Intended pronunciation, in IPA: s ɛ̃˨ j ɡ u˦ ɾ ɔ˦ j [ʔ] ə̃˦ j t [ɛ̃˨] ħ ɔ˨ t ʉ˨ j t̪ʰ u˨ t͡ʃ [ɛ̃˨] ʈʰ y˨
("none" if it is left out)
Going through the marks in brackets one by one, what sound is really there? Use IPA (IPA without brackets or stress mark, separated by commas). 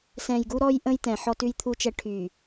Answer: ʔ, ɛ̃˨, ɛ˨